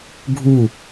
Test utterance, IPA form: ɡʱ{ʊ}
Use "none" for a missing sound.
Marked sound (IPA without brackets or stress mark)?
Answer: u